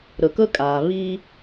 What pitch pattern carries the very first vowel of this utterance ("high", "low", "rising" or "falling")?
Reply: low